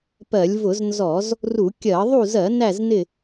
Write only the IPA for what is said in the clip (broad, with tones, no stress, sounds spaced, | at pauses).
p ɜ˧˩˧ lʲ v ʊ˧˩˧ z n z ɔ˧˩˧ z | r u˧˩˧ kʲ ɜ˧˩˧ ðˤ u˦˨ z ɜ˧˩˧ n æ˦˨ z n ɪ˦˨